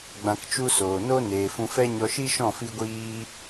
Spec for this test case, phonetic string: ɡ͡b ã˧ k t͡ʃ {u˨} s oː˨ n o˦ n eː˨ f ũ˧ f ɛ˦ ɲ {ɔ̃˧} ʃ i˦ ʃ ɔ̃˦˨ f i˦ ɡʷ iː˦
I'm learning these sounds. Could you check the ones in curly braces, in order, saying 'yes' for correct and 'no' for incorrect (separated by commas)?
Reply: no, no